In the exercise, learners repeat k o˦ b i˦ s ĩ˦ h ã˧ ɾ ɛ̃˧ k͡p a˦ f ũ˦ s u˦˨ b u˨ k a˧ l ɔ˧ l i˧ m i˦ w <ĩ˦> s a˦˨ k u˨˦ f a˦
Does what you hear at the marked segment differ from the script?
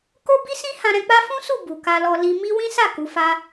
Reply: no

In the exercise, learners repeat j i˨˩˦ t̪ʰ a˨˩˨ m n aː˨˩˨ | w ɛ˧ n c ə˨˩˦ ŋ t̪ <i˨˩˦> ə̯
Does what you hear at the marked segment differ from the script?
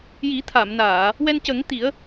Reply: no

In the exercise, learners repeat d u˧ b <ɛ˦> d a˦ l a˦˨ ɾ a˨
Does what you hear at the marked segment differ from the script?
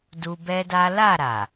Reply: no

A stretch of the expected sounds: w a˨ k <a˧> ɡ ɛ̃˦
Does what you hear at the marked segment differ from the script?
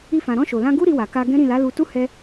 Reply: no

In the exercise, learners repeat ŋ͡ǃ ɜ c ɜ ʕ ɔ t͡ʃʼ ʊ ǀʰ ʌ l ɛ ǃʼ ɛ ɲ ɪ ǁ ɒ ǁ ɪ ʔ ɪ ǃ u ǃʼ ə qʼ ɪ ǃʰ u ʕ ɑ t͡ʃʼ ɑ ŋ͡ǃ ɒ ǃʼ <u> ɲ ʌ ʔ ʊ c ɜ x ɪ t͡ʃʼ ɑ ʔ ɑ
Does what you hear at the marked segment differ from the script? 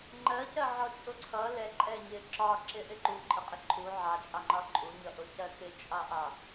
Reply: no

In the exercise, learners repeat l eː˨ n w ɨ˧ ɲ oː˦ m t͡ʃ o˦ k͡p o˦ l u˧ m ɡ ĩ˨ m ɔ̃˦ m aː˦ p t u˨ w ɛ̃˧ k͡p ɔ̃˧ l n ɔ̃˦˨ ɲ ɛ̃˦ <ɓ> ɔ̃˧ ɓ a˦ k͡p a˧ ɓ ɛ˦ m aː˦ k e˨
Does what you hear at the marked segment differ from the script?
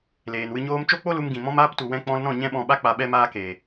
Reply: no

